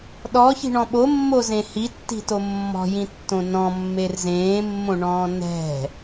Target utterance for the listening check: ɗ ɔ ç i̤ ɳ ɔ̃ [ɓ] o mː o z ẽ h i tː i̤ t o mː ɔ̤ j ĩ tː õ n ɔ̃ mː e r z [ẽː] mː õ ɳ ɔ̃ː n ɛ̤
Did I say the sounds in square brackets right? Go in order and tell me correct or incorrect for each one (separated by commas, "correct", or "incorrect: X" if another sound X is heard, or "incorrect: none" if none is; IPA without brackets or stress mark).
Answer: correct, correct